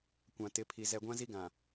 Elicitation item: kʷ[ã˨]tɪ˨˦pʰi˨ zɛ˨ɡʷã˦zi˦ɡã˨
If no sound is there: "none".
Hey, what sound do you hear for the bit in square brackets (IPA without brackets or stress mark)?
ã˨